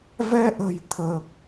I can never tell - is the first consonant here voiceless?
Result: no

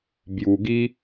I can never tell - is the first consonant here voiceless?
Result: no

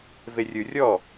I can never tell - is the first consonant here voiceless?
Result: no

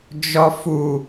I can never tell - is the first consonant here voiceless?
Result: no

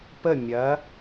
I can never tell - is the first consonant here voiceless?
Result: yes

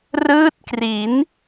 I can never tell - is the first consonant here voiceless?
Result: no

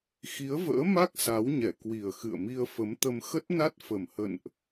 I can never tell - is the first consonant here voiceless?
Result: yes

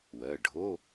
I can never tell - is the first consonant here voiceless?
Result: no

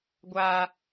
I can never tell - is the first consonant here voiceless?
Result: no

